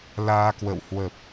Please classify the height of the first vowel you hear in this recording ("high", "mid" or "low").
low